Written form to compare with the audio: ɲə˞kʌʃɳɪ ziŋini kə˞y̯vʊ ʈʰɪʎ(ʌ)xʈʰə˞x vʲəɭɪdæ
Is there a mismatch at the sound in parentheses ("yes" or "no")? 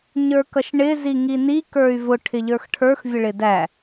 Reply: yes